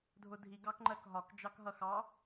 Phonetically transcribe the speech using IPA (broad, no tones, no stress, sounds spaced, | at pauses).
dʱ ʊ dʱ i ɡ ɑ k ŋ͡ǃ ɜ k ɦ ɒ k d͡ʒ ɑ k ɦ ʌ x ɑ